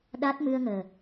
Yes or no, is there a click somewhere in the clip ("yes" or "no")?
no